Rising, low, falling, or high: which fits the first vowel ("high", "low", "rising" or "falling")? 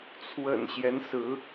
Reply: low